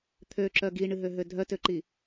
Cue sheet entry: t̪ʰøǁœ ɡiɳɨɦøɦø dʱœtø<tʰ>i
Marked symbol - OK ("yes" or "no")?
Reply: no